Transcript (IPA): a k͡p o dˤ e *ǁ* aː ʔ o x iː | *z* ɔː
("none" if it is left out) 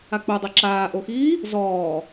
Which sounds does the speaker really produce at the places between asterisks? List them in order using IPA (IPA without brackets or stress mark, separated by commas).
ǁ, z